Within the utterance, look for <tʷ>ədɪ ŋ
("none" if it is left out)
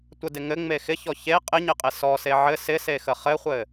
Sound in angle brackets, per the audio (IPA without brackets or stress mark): tʷ